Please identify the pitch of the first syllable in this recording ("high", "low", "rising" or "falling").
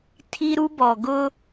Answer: high